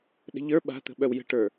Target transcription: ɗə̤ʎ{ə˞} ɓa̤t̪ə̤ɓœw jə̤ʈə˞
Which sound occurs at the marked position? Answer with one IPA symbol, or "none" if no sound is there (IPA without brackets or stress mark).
ə˞